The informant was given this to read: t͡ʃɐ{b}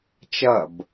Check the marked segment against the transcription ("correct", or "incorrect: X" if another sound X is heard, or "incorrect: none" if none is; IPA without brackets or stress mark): correct